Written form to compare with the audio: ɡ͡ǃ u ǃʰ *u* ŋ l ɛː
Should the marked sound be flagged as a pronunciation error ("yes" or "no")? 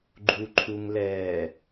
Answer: no